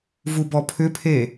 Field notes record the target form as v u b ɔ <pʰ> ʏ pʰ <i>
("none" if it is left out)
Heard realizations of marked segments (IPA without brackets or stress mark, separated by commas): pʰ, e